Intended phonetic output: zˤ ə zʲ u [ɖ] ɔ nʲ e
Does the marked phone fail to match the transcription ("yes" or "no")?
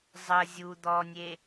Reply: yes